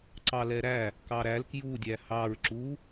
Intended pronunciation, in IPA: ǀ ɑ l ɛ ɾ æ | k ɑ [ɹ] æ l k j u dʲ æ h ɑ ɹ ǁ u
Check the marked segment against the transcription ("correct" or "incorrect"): incorrect